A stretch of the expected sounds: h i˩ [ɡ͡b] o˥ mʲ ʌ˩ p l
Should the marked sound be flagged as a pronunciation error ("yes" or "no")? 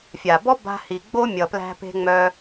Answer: no